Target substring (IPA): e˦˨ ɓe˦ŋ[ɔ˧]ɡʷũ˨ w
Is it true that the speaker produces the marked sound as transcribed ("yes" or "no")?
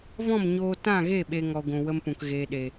yes